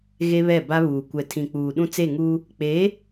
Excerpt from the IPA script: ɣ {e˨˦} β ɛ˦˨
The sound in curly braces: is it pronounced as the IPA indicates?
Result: no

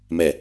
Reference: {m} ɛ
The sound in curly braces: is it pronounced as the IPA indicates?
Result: yes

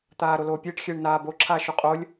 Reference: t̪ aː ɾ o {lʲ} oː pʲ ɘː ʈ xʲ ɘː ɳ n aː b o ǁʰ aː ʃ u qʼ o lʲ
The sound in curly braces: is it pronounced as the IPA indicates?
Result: no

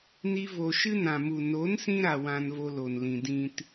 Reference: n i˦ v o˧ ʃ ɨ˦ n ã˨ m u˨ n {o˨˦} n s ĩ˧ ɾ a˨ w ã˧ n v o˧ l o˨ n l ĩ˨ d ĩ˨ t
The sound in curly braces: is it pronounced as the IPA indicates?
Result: yes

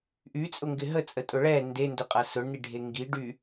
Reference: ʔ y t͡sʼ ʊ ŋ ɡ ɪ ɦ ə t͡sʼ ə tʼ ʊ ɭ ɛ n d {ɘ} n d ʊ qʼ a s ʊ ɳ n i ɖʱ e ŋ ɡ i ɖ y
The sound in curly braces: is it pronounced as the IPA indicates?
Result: no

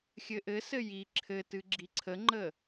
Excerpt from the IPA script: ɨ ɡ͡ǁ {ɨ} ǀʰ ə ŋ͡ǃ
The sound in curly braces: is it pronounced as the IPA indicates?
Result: no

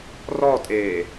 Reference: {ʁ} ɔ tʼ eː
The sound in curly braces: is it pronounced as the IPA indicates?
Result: no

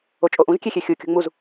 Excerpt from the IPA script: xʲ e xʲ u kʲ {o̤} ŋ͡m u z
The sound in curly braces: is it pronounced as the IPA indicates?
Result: yes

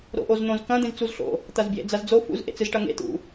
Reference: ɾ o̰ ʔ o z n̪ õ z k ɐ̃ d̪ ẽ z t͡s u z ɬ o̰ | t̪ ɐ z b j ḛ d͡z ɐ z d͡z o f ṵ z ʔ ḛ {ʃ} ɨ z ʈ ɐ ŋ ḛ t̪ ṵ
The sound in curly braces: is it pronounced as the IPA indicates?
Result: no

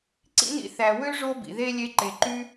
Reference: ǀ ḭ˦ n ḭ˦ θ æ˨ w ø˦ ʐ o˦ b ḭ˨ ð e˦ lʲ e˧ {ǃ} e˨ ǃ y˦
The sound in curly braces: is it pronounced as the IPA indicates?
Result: yes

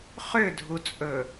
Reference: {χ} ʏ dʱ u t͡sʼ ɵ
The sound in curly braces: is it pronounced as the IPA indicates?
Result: yes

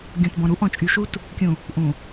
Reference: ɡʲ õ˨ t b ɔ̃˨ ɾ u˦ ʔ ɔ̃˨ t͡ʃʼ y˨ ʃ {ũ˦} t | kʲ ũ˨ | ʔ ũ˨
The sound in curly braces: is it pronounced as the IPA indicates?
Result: no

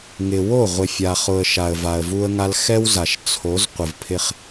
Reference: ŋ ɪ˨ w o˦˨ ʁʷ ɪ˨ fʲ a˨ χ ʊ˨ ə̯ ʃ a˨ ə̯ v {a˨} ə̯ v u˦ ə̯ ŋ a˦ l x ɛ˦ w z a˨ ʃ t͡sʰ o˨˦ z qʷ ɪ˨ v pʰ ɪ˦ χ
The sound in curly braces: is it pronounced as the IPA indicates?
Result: yes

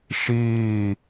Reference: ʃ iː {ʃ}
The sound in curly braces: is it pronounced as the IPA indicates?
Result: no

